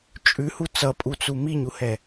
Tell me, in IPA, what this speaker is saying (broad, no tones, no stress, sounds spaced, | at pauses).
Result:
t͡ʃʼ ʉ h u t͡s ʌ pʼ u t͡s u m i ɲ u h ɛ